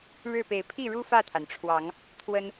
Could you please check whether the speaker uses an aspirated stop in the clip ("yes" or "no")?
yes